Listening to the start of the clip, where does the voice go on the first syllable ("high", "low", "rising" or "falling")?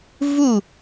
falling